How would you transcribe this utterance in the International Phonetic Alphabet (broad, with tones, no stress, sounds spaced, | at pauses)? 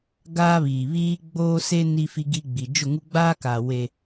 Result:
ɡ aː˦ β iː˨ β iː˦ ɡ͡b oː˦ s e˦ n i˦ f i˦ ɡ i˦ ɡ͡b i˨ d͡ʒ ʊ˦˨ ŋ u˦ ɡ͡b aː˦ k a˨ w e˦